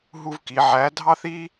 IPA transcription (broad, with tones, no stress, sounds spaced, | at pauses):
ɦ u˦ v k i˨˦ ʕ æ˨˦ dʱ ɑ˦ θ i˦